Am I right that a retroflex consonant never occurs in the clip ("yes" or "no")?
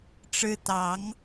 no